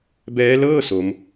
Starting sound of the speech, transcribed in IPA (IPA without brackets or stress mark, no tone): b